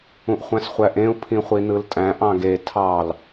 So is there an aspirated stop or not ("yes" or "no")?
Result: yes